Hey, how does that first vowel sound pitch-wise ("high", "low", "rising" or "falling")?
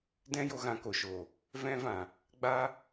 high